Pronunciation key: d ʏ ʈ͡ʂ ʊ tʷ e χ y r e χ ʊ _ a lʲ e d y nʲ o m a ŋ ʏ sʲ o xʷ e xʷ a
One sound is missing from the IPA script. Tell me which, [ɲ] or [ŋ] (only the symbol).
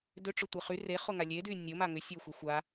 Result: ŋ